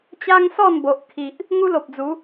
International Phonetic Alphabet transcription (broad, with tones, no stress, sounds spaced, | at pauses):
t͡ɕ a˦ ŋ s ɔ˥˧ n b o˨ ʔ kʰ i˨ ʔ | ŋ u˦ l o˨ p̚ d͡z u˨˦